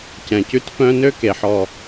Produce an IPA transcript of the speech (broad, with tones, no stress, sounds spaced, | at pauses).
c ɛ̃˨ c ʉ˦ t f œ̃˦ n ø˦ k e˨ ħ ɔ˨